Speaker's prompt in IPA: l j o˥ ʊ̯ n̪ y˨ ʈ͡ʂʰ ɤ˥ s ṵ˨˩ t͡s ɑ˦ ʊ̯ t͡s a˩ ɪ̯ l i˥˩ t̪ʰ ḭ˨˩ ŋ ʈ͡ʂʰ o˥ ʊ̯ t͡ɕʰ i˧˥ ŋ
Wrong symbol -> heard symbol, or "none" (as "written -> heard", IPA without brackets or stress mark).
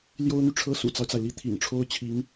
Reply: none